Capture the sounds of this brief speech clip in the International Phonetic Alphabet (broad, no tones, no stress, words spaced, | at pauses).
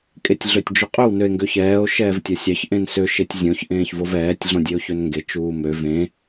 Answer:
kʼetʲɮøtʲd͡ʒuqʼøw nøe̯ŋɡøçɛːo̯ ʃɛːvtʲɐsʲɑç ʔẽnsø ʃetʲzʲõç ʔẽːçvovɛːtʲ ɮõdʲeo̯çønŋɡe t͡ʃuːmø vẽ